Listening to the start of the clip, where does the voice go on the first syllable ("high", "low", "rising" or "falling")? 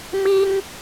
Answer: high